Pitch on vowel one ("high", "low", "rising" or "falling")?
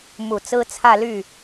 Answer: low